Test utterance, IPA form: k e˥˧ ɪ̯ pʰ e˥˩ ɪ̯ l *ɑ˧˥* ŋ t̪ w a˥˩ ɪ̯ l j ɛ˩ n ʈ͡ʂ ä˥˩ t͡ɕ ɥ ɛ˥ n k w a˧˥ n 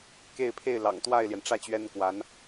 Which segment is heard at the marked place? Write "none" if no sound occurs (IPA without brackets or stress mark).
ɑ̰˨˩